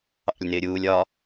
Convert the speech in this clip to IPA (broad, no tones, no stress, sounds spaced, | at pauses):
ɑ̰ lʲ n ɪː ɾʲ uː lʲ ɒ